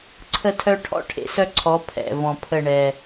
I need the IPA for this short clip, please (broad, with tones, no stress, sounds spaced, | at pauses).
ǀʰ ə˦ tʰ œ˦ ʈʰ ɔ̰˦ ʈʰ ḛ˨ s œ˦ ǀʰ ɔ˨˦ pʰ ɛ̰˨ v ɔ̃˨ pʰ ə˦˨ ɳ ɛ˨